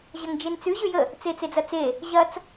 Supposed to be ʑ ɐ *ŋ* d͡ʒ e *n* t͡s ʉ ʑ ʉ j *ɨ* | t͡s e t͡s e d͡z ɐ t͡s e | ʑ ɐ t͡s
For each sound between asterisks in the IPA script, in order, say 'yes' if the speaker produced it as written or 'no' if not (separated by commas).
yes, yes, no